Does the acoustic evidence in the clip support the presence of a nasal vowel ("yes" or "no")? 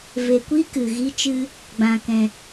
yes